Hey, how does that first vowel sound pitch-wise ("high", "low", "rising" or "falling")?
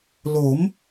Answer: rising